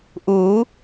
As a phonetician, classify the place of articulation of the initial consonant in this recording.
glottal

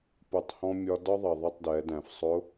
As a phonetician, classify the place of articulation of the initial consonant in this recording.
labial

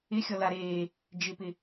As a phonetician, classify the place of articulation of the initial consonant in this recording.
velar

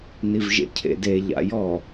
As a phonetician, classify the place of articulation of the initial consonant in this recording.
alveolar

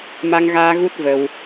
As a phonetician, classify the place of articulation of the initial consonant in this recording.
labial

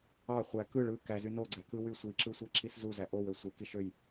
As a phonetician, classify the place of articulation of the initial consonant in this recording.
uvular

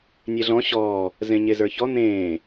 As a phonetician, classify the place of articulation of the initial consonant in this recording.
alveolar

